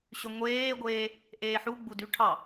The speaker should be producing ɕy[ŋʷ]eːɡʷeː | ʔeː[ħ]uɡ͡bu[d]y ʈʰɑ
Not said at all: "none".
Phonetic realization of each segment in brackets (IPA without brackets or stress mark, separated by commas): ŋʷ, ħ, d